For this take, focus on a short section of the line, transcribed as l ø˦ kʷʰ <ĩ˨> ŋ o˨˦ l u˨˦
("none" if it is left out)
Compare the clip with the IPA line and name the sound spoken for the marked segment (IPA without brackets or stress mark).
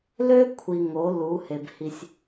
i˨